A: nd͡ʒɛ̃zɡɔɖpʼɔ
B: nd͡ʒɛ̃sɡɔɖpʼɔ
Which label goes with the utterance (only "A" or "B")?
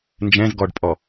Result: A